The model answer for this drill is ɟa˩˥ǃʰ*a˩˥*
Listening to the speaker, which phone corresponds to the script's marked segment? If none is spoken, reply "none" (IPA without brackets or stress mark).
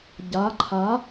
a˩˥